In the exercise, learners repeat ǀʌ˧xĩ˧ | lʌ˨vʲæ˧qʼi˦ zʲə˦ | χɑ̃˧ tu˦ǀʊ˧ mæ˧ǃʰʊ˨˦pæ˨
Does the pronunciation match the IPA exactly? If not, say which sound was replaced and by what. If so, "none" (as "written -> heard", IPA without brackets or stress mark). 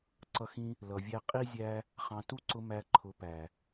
ə˦ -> æ˦